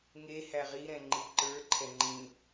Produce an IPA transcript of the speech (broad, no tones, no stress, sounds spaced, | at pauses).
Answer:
ŋ e h æ ʁ i ɾ ɛ̃ ŋ͡ǃ i ǃ ə˞ ǃʰ ɛ ŋ͡ǃ ĩ